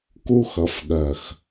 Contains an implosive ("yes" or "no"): yes